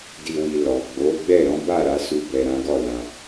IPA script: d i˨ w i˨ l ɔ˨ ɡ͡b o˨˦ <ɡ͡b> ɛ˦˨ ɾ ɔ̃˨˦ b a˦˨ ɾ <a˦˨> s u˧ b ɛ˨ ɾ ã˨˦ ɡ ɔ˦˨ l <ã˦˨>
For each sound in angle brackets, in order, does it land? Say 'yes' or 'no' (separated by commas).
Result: yes, no, no